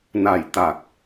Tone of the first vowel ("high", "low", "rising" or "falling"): low